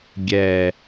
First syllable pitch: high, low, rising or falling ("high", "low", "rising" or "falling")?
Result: low